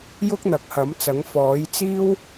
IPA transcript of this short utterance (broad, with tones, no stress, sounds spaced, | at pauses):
j ʊ˥ k̚ n̪ ɐ˨˥ k̚ h ɐ˨˥ m t͡s ɐ˨˥ ŋ f ɔː˨˥ j t͡s iː˥ w